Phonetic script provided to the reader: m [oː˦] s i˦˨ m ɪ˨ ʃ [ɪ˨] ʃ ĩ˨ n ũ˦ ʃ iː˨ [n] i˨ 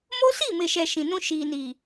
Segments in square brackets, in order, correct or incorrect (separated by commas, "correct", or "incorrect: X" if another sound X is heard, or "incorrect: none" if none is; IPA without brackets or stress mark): incorrect: o˦, incorrect: ɛ˨, correct